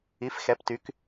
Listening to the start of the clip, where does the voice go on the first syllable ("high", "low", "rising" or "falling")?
rising